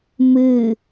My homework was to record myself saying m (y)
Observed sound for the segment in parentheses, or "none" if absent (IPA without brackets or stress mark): ɨ